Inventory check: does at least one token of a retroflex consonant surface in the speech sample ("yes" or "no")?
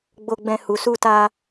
no